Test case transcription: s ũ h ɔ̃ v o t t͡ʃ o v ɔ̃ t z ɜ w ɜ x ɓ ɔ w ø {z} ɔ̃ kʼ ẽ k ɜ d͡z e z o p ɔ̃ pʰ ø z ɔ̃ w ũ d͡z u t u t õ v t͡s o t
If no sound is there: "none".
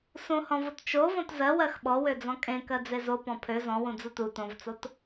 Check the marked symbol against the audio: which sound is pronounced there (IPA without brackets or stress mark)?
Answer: d͡z